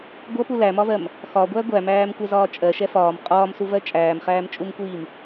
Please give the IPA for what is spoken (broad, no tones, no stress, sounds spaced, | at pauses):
ɡʷ ʌ p u l æ m ɒ v ɜ m | x ɒ ɡʷ æ ɡʷ æ m æː m kʷ ɛ z ɒː t͡ʃʼ ɜ ʃ ɛ f ɒː m qʼ ɒː m s u v ɜ t͡ʃʼ æː m χ æː m t͡ʃʼ u m kʷ iː m